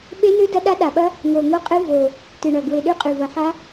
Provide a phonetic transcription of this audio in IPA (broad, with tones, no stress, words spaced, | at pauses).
ɓe˦˥nɨ˦˥ dɐ˦˥ɗa˦˥ɗa˨˩ɓɐ˦˥ | ŋo˨˩ŋo˦˥qʼɨ˦˥ vo˨˩ | tɨ˨˩ɳɐ˨˩ ɡwe˨˩ɗʉ˦˥qʼʉ˨˩ vɐ˨˩ħa˦˥